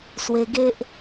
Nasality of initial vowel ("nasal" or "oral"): oral